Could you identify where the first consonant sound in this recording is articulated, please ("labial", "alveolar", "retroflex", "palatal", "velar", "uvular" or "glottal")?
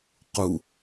uvular